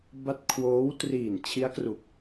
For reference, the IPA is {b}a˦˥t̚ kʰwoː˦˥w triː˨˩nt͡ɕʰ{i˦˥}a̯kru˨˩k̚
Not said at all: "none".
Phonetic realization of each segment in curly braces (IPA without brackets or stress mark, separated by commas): b, i˦˥